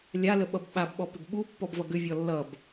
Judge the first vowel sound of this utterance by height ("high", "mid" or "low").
low